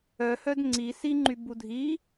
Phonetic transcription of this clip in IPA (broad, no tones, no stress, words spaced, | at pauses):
œhœd ŋ͡ǀi siŋ͡ǃybu dʱi